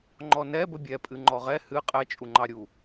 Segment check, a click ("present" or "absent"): present